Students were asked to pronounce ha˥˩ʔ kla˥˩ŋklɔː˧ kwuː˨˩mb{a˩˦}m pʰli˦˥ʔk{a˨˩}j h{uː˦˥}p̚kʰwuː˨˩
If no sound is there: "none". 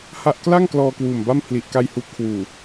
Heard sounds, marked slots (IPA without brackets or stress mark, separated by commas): a˥˩, a˥˩, uː˦˥